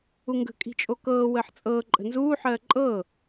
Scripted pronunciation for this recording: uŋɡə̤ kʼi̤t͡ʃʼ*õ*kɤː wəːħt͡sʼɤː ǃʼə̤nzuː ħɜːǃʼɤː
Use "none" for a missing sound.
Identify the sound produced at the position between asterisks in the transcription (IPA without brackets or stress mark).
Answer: o